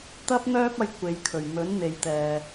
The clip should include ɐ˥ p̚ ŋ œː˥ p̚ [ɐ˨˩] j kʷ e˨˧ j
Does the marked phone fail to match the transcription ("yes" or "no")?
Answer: yes